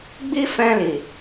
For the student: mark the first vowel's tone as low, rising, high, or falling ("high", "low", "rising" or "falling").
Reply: high